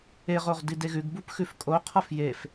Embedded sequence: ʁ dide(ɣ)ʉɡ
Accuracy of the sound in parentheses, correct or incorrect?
correct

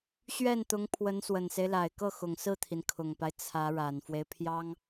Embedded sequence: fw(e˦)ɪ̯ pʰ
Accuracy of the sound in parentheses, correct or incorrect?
correct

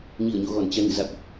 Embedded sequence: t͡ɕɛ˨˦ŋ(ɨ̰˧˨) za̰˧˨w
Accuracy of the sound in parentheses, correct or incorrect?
correct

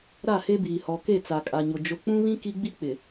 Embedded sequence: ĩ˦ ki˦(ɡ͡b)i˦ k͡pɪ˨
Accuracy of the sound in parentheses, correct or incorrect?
correct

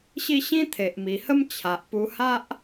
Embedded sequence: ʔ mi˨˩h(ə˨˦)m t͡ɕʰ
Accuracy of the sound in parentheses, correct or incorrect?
incorrect: ə˦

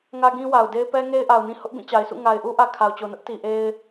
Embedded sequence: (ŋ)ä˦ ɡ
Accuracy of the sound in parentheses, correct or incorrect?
correct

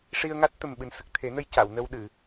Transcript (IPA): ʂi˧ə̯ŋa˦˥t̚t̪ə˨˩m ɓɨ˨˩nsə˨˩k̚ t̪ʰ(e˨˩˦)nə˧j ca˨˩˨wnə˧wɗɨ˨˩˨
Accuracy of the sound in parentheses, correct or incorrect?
correct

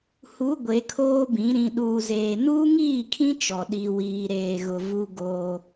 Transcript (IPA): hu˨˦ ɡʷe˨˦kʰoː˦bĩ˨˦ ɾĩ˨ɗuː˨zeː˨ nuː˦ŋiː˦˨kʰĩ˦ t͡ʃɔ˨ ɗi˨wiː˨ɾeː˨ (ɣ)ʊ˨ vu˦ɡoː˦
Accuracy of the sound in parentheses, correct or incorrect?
correct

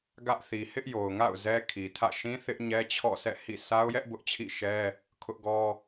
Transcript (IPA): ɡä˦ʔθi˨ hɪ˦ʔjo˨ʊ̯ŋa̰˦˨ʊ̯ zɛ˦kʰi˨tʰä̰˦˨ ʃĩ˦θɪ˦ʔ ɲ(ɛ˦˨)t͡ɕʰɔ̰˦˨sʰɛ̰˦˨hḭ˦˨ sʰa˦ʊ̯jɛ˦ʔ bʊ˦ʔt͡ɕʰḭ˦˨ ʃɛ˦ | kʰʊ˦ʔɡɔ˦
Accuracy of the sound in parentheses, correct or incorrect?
incorrect: ɛ˦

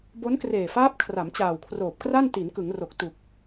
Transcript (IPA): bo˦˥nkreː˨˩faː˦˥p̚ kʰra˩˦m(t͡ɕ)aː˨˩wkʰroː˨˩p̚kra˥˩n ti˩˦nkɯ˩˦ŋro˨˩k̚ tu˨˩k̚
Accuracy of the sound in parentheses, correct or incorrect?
correct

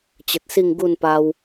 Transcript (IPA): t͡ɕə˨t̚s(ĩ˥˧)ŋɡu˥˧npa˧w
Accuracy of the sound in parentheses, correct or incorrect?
incorrect: i˥˧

